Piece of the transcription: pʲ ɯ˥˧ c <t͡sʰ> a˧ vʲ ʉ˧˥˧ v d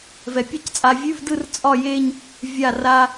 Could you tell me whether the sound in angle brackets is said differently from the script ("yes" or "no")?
yes